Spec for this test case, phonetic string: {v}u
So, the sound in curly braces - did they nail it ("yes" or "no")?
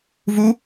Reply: yes